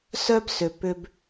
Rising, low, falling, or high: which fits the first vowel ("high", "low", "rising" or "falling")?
high